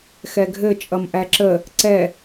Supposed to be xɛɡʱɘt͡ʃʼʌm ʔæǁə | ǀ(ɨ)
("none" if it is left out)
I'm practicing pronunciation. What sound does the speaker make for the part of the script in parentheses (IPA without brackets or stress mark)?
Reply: ɛ